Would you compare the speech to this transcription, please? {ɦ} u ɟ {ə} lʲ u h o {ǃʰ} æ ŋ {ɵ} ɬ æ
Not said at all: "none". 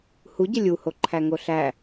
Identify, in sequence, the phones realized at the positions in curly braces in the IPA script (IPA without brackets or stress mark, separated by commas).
h, ə, ǃʰ, o